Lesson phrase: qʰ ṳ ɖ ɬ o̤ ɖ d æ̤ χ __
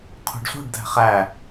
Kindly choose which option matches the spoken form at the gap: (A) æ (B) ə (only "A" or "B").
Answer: A